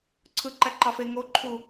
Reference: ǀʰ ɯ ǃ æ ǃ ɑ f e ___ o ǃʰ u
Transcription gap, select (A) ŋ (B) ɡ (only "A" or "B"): A